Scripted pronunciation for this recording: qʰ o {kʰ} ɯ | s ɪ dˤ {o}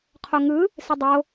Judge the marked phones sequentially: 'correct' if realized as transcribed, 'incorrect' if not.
incorrect: ŋ, correct

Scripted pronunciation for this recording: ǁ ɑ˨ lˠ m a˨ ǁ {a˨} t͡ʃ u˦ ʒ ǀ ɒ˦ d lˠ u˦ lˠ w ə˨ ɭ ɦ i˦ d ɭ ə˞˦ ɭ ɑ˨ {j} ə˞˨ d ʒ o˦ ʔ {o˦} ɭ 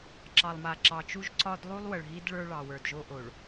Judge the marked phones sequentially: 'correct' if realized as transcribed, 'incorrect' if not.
incorrect: ɑ˨, incorrect: w, incorrect: o˨

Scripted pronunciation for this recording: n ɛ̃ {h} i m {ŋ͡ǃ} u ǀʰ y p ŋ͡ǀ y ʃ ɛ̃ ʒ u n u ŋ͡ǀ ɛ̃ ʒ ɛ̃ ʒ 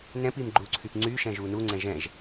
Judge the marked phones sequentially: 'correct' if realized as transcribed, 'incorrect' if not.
incorrect: p, incorrect: ɡ͡ǃ

